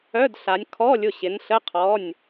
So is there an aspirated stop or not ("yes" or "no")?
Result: yes